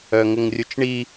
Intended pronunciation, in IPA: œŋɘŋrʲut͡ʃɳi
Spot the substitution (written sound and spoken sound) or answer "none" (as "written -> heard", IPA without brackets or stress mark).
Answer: none